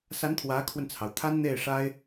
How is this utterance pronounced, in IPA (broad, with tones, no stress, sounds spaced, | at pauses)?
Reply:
s a˧˥ n t̪ʰ w ä˧˥ kʰ w ə˧ n t͡sʰ ɑ˩ ʊ̯ t̪ʰ a˥ n n̪ e˥˩ ɪ̯ ʂ a˥ ɪ̯